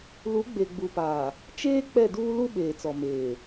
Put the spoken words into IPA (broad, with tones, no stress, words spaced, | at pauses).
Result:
lu˨˦ɡ͡be˨ɡ͡bu˨paː˨ | t͡ʃeː˦ k͡pɛ˦˨duː˦ lu˦ɓeː˨t͡sɔ˨ meː˨